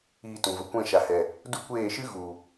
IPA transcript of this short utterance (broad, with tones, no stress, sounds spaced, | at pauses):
iː˧ t ũ˨ v ə˨ kʷ ɛ̃˦˨ ʃ a˨ h ɛ˨ | d u˦ kʷ eː˦˨ ʃ ɨ˦ ɣ u˨